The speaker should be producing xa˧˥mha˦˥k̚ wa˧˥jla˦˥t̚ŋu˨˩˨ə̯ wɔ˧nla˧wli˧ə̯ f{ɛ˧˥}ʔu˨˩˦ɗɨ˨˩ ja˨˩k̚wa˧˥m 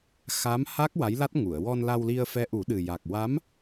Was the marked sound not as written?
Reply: no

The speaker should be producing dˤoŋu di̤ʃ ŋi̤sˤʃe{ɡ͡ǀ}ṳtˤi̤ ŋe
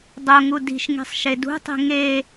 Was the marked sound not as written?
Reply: yes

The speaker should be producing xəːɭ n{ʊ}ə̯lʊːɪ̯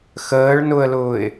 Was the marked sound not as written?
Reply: no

